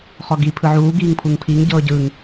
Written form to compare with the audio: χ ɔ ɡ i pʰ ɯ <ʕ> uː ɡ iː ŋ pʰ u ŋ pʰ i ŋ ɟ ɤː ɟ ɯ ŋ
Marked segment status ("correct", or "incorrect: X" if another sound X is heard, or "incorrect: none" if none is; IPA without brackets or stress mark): correct